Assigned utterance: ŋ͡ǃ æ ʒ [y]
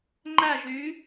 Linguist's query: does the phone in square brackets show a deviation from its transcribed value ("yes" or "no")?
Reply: no